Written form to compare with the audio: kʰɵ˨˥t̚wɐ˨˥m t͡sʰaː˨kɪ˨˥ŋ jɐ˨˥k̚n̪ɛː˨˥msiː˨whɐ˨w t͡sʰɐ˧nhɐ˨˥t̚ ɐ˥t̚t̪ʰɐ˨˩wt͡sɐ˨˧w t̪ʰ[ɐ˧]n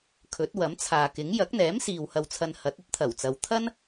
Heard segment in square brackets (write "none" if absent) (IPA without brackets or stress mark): ɐ˥